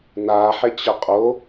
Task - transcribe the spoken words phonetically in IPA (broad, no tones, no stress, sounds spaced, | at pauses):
n a ħ e t͡ɕ ɐ qʼ o